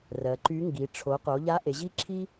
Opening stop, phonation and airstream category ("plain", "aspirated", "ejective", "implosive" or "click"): click